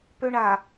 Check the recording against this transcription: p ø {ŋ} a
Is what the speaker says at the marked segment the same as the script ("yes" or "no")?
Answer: no